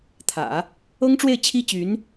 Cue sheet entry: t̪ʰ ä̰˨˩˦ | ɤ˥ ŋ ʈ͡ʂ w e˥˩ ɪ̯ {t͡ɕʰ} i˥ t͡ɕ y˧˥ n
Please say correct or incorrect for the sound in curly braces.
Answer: correct